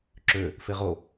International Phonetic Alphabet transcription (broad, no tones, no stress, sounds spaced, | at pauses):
ǁ ø | f e ʁ o